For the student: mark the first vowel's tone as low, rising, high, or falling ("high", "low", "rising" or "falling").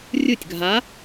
falling